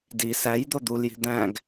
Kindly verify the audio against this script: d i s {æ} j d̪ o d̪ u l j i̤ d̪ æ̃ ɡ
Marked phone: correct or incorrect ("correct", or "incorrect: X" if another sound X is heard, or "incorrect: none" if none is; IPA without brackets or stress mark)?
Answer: correct